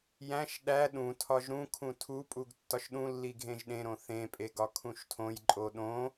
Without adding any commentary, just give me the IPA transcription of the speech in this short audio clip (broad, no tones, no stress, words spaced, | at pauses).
jæ̃ʃ ɗæ ɗũtʰɒʒ ɾũkʰũ tʰupʼuɡ tːɒʃɗũlːi ɡʱẽʒɗẽɾõ θẽpʼeɡ ɒkʰũʃtʰõjǃʼo ɗõ